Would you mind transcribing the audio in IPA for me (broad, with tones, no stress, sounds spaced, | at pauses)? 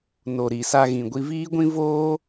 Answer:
n o˨ ɾ i˨ s a˧ ɣ ĩ˨ ɡʷ i˧ v iː˦ ɡʷ ĩ˦ v oː˦